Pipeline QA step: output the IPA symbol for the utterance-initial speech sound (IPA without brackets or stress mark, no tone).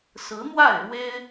s